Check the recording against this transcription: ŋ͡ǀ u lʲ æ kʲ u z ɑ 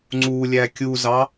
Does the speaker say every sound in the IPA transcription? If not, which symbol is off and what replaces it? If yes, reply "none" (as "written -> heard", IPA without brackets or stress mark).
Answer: none